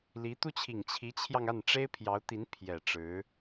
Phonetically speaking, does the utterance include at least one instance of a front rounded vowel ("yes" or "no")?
no